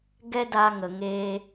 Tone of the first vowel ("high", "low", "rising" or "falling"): high